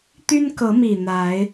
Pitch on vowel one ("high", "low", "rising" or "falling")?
high